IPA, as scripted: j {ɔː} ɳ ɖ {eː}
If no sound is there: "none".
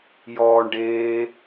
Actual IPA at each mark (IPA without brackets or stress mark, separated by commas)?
ɔː, eː